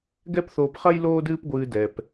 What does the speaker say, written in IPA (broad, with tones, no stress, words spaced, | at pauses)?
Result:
ɡɛ˦pθoː˧pχɐ˦j loː˦dɨː˦pɡʷɨː˧ dɛ˧p